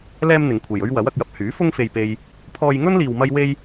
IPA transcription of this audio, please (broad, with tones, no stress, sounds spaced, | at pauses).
l ɛː˥ m n̪ ɪ˨˧ ŋ kʷʰ e˨ j ɵ˥ ɥ w ɐ˨˥ w ɐ˧ k̚ j ɐ˧ p̚ h yː˨˥ f ʊ˥ ŋ f e˧ j p e˧ j | pʰ ɔː˧ j ŋ ɵ˥ n l iː˧ w m ɐ˥ j w e˥ j